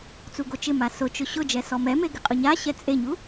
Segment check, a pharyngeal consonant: absent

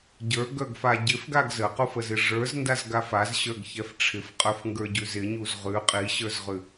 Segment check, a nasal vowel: absent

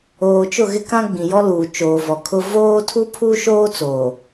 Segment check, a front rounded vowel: absent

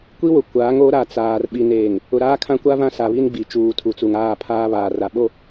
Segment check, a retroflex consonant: absent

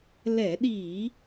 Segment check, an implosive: present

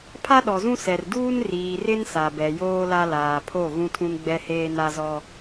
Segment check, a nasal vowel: present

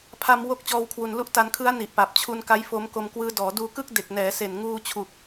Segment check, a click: absent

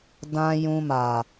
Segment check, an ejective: absent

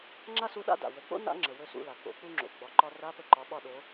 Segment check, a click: present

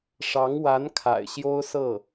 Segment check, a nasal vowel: absent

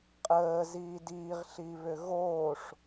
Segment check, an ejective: present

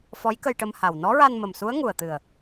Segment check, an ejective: absent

